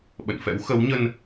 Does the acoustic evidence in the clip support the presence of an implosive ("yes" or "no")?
yes